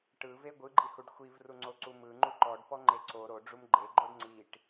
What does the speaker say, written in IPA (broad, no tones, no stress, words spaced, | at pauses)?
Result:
ʈɯve ɡʷɯɡ͡ǃihuɖ xʷivruŋ͡ǀoǀu mɯŋ͡ǃu ǃɔɖpɔŋ͡ǃe ǀo ɾoɖ͡ʐum ɡ͡ǃeɡ͡ǃoɖ ŋ͡ǀiʈ